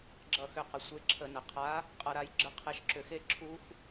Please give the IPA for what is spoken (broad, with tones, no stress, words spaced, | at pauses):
ɡ͡ǁʌ˧˩xʏ˧˩qə˩ sʷe˨˥ǁʰə˧˩˧nə˩ qʰa˨˥ | qʼʌ˨˥ɾa˨˥j ɡ͡ǁə˨˥qʰe˨˥ʃǁʏ˧˩˧xe˦˥ ǁʰu˦˥x